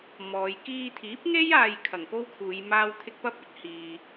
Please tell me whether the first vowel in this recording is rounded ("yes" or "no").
yes